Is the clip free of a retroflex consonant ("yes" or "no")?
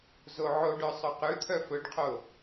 no